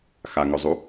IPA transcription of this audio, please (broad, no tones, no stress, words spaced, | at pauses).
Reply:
xaŋɵzˤu